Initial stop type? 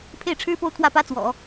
aspirated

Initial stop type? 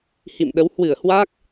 implosive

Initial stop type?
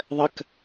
plain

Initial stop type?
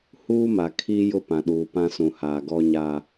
aspirated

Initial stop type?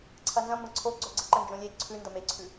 click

